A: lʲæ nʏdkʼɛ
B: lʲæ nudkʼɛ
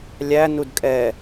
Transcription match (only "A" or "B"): B